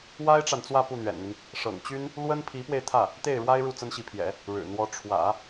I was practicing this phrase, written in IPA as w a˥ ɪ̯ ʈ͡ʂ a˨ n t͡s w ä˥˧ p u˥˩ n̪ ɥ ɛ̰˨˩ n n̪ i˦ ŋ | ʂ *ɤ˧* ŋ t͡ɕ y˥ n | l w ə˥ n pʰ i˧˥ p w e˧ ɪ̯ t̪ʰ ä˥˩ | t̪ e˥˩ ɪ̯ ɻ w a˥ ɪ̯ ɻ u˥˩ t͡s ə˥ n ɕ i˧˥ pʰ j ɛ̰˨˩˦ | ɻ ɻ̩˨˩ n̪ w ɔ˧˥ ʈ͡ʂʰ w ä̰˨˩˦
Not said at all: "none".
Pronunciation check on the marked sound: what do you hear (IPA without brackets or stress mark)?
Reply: ɤ̰˨˩